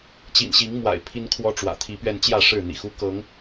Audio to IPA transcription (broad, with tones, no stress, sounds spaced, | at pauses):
t͡ɕ ḭ˨˩ n ɕ i˨˦ ŋ m w a̰˨˩ ɪ̯ pʰ i˦ n kʰ w ɔ˦ ʈ͡ʂ w ä̰˨˩ t̪ʰ i˨˦ p ɥ ɛ˧ n t͡ɕ j ä˥˨ ʂ ɻ̩˥˨ n̪ ḭ˨˩ x u˦ k ɤ˨˦ ŋ